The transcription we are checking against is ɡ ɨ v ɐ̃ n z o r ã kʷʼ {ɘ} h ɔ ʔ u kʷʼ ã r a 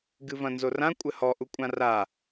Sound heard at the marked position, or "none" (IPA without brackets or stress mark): ɘ